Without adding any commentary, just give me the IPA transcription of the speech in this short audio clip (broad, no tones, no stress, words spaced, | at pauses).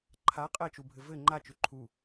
ǃʰa qʼɜt͡ʃubʱɘ vɘ ŋ͡ǃat͡ʃʉ ǃʰu